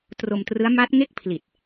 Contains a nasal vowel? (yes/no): no